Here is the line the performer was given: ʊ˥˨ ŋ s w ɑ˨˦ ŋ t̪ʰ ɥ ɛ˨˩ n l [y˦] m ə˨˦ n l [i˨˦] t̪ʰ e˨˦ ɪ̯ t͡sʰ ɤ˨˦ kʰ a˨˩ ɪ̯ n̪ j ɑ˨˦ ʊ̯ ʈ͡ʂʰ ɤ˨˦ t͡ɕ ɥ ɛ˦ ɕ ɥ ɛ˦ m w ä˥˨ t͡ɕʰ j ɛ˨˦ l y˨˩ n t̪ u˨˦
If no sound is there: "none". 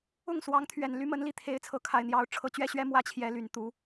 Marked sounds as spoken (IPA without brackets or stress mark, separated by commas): y˨˦, i˨˦